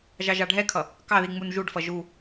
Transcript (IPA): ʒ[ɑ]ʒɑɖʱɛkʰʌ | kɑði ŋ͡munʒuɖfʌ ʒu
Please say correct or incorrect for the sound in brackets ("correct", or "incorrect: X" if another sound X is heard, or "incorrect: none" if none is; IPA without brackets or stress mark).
correct